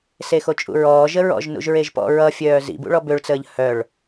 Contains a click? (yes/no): no